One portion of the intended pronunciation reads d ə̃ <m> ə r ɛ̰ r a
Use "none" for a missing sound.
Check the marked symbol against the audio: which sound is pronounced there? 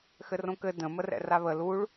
m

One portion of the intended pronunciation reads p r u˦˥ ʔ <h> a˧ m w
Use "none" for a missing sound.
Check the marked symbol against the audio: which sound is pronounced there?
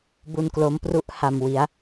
h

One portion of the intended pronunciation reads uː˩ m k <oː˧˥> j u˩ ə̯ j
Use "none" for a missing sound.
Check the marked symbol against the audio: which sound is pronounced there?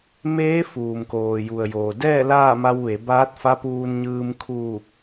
oː˩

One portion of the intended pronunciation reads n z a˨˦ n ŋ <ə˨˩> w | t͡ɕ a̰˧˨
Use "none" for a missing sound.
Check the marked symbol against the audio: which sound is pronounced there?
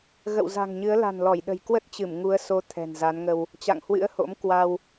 ə˧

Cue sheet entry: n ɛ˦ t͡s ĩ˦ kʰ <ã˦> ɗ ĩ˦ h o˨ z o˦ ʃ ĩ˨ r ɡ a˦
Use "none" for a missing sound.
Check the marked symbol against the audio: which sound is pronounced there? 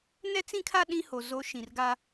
a˦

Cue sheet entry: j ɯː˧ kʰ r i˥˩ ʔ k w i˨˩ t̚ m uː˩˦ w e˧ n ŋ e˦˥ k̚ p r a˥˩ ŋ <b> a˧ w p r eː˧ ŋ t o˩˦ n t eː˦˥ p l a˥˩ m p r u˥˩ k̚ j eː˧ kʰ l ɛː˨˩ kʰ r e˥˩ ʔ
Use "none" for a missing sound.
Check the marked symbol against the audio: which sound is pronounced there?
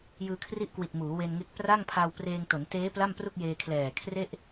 pʰ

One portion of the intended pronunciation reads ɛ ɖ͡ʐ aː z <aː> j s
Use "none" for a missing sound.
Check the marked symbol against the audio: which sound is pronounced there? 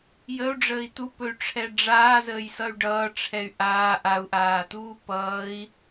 əː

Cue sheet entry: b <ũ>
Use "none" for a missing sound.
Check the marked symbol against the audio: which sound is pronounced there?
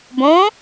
õ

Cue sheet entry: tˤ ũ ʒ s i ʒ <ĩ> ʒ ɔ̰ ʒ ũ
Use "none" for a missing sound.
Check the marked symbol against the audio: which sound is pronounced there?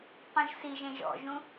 ẽ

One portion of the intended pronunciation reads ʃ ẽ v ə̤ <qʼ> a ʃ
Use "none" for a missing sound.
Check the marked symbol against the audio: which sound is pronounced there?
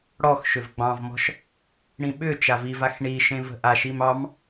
ʔ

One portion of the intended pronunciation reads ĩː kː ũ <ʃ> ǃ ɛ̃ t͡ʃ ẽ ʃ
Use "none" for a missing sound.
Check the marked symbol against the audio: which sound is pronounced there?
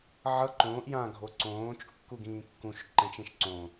ʃ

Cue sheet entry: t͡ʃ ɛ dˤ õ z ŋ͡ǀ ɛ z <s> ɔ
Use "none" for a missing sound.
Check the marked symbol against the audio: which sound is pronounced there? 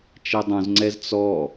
t͡s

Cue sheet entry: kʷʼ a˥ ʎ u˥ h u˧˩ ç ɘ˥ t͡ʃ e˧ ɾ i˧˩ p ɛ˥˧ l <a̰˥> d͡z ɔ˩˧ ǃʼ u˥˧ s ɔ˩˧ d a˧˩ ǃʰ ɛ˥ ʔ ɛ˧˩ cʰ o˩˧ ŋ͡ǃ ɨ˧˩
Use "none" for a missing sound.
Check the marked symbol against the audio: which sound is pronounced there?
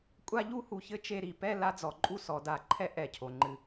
a˥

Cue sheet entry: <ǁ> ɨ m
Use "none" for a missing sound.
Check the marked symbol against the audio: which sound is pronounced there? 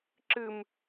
ǁ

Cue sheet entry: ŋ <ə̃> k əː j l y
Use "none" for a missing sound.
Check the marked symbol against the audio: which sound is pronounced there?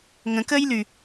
ə̃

